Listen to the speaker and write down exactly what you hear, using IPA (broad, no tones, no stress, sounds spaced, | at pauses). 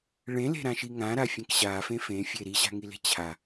ɭ ẽ l e̤ ɾ ã ʃ i ŋ ã ɾ a fʲ ẽ k ɕ a f ẽ f ẽ fʲ e ɾ i ɕ a̤ ŋ i l e̤ t͡ɕʰ a